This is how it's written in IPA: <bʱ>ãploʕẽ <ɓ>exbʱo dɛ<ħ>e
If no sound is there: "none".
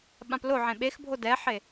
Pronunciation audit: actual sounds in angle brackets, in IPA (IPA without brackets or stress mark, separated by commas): ɓ, ɓ, ħ